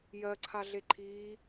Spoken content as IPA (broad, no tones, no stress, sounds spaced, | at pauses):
j ɜ ǀʰ a ɮ e ǃʰ iː